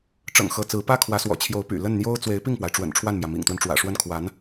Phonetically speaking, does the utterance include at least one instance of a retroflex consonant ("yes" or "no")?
yes